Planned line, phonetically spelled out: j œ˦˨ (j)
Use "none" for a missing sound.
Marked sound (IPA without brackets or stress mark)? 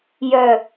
none